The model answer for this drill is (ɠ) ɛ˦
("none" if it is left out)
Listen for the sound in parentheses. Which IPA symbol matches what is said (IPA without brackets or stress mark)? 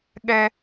ɠ